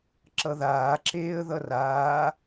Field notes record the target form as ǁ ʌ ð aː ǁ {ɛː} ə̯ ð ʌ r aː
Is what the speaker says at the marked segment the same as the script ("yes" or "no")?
no